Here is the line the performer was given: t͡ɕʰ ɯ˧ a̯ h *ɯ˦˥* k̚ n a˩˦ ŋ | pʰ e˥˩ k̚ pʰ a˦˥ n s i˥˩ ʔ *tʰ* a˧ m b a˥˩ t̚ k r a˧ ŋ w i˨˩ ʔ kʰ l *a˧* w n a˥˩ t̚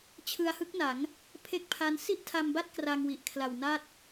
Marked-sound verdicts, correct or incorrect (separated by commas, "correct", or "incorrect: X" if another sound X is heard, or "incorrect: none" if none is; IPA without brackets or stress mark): correct, correct, incorrect: a˨˩